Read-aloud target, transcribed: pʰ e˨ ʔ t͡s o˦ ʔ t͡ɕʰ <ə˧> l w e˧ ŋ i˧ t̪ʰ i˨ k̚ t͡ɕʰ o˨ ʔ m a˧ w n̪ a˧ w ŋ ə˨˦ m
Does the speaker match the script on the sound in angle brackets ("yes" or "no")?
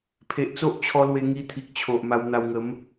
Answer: no